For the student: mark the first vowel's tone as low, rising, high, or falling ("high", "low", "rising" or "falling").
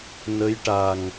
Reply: rising